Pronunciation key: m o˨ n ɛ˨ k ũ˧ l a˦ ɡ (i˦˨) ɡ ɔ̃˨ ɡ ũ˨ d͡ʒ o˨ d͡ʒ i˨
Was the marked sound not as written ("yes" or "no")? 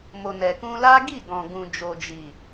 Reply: no